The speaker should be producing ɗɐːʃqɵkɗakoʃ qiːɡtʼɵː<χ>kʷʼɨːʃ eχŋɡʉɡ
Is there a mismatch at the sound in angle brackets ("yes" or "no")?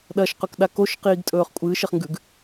no